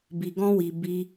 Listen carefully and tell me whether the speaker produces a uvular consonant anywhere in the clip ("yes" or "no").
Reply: no